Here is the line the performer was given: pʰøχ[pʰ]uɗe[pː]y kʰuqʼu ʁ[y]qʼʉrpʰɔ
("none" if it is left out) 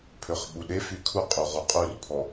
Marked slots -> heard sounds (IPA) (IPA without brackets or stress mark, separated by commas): ɓ, f, u